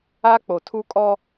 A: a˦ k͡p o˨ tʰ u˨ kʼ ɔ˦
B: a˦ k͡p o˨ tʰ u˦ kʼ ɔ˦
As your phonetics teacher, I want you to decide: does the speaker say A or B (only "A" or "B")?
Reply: B